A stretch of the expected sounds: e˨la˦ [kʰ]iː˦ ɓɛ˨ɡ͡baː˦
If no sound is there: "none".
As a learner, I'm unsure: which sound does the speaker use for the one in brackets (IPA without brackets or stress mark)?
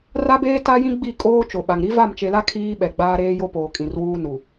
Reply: kʰ